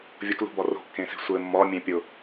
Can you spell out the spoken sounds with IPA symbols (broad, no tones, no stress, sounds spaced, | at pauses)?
vʲ ʊ k l ṳ b ɒ r o̤ kː ẽ s e̤ sʷ ɘ mː ɒ mʲ ẽ pʲ ʊ